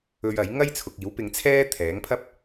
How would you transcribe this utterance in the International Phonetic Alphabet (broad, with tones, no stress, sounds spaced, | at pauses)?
ɵ˧ ɥ ɐ˨˥ j ŋ ɐ˥ j t͡sʰ ʊ˨ k̚ iː˨˥ w p ɪ˧ ŋ t͡sʰ ɛː˥ t̪ʰ ɛː˨˥ ŋ pʰ ɐ˥ p̚